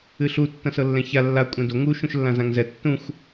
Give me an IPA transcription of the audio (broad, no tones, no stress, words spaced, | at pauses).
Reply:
ɨɬu tːɐ̃sɤlːɛ̃ça lːa kʷʼɛ̃do ŋu ʃũʃlːãzãŋzɛ tːũxʷ